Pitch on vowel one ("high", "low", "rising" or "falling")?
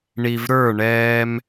low